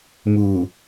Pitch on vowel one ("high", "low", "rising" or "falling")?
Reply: low